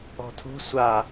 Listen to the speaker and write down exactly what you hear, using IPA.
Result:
ɔ̤ tʰ ṳ sʷ a

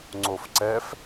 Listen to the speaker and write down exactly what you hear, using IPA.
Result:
ŋ͡ǀ o f ǀ ɛ f

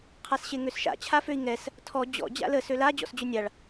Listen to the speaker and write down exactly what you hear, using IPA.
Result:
qʰ a s ɕ e ŋ ø s ʃ a̰ t͡ɕʰ a f ø i̯ ŋ ɛ s | tʰ ɔ d͡ʑ ɔ̰ d͡ʑ a̰ l ə s ø l a d͡ʑ ɔ̰ s d͡ʑ ø nʲ a ɭ

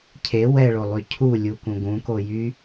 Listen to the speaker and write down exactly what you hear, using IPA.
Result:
cʰ e w ɛ ɭ o lˠ y cʰ u lʲ u k ũ ɡ ũ k o j y

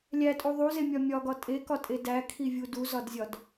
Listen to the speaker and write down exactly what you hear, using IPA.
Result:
lʲ æ tʼ u ðˤ u z e mʲ ɒ mʲ ɒ ɡ ɒ tʼ e k ɒ tʼ e d æ kʰ i vʲ u d u z ɒ d zʲ ɒ d

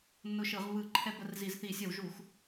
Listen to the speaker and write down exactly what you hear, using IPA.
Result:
nː ʊ˧ ʃ ɯ˧˩˧ ʁ β ɯ˧˩˧ ǃʰ ɛ˧ b ə˧ r z i˧˩˧ z θ i˧˩˧ sʲ ə˧˩˧ w ʒ u˧˩˧ x

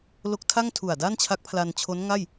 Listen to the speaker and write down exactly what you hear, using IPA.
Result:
l o˦˥ k̚ tʰ a˥˩ ŋ tʰ u˨˩ a̯ d a˥˩ n t͡ɕʰ a˦˥ k̚ pʰ l a˧ n t͡ɕʰ o˦˥ n ŋ a˥˩ j

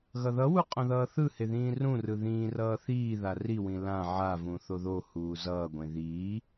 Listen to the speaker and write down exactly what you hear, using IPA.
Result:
ɣ ʌ ð ʌ w u qʼ õ ð ʌː θ ɯ h e ð ĩː r ũ r ɯ ð ĩː r ʌː θ iː ð a r i w ĩ l ã ʕ a v ũ θ o ð o h uː z ʌː ɡʷ ẽ ð iː

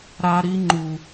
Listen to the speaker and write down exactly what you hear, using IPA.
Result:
ɾ a˦ ɾ i˦ ŋ͡ǃ u˨

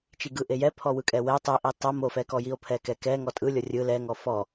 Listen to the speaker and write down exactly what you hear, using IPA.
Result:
t͡ʃ i ɡ ɯ ʔ e j ɛ pʰ ɔ w ɯ kʼ ɛ w ɛ tˤ ɯ ʔ i tˤ o m o f ɛ k ɔ j i o̯ pʰ ɛ k ɛ k ɛ ŋ ɔ tʼ ɯ lʲ ɔ rʲ ɯ l ɛ ŋ ɔ f ɔ

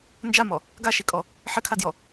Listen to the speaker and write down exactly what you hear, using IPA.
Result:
n d͡ʒ a m ɔ | ɡ a ʃ i kʼ ɔ | ħ ɘ kʰ a d j ɔ

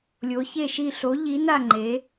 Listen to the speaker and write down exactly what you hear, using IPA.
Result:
lʲ o˨˦ ç e˦˨ ʃ i˦˨ ɬ o˨˦ ʎ i˨˦ n a˦˨ ŋ͡ǃ e˨˦

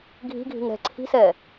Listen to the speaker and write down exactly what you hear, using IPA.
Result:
ɡʱ i̤ ɡʱ i̤ ŋ ɾ ɛ̤ ǀʰ i̤ s ɛ

